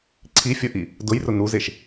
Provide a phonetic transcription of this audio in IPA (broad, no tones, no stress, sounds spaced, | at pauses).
ǀʰ i fʲ ɔ ʔ i | d ʊ j r ʊ n u z e ʃ